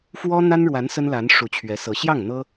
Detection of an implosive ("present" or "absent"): absent